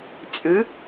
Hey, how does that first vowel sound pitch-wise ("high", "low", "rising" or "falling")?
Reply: rising